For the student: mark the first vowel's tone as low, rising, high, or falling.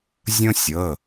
high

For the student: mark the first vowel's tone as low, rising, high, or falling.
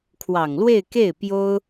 low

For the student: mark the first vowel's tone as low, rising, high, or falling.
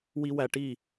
high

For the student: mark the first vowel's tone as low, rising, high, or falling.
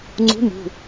rising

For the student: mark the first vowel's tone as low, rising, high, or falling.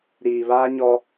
low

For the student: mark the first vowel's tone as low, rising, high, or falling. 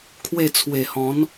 falling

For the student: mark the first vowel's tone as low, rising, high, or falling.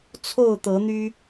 falling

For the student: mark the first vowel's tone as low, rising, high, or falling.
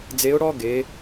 rising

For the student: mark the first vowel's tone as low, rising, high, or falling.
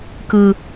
low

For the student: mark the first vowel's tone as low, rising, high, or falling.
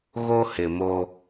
high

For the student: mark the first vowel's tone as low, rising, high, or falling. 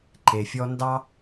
low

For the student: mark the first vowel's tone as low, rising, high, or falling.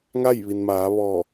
falling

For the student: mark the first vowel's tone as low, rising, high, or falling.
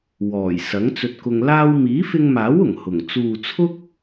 low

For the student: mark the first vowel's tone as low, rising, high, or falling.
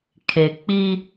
low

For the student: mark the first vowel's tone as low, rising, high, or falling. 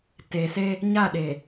low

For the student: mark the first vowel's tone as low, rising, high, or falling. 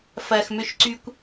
low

